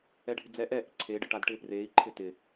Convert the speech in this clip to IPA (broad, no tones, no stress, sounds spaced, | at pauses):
ɛ ɖʱ ɪ d͡z ɛ ʔ ɛ ʔ ɪ ǀʰ eː ɖ ɪ ʈ a d ʈ ɪː p r eː i̯ ǃʰ ɪ t ɪ